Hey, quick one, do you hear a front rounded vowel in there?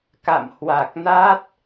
no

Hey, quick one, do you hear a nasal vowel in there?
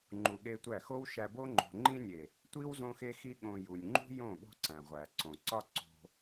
yes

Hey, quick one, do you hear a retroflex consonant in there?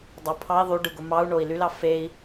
yes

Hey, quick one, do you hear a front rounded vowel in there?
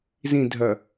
yes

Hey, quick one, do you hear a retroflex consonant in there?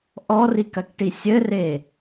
yes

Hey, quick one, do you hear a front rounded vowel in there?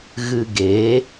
no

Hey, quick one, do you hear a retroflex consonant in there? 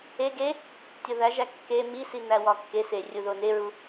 no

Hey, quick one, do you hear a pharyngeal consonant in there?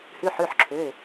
yes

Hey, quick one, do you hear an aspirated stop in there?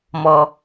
no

